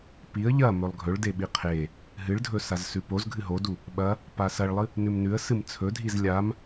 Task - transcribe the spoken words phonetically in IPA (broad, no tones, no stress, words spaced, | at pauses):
piə̯ ʎɐ mɵlˠɡʱɵɭ deɓiqʰe | ɦɨɭdʱɵ sazsʉpoz ɡʱɨɦodu | ɓɐ | pasɐɭlˠɨ | nʉmnʉə̯ sɨmt͡sʰɵdʱiz lʲam